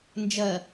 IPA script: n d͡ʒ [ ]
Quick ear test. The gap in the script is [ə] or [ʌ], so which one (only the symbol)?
ʌ